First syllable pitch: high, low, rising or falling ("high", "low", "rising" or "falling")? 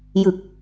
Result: low